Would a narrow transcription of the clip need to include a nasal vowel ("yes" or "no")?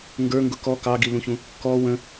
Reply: yes